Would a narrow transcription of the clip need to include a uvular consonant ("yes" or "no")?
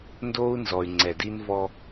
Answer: no